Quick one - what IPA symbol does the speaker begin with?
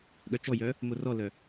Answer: ɠ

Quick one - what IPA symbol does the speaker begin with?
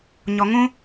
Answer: ɲ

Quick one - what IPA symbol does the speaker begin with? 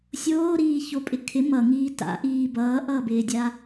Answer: sʲ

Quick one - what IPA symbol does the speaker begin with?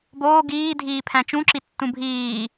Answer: b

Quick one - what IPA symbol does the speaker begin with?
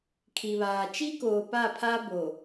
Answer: kʰ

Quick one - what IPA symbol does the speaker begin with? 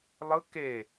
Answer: lˠ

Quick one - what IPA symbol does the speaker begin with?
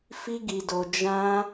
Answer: f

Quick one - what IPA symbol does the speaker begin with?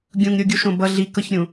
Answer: ɡʲ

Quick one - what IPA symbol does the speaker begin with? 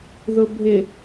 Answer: ð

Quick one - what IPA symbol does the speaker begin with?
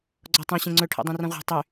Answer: ɡ͡ǀ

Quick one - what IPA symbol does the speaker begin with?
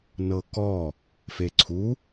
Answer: n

